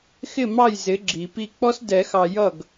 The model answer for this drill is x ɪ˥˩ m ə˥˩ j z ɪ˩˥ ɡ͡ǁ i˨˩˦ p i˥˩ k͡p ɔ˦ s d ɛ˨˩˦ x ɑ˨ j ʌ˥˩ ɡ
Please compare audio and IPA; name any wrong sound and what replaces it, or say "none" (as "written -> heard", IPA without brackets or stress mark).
ə˥˩ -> ɑ˥˩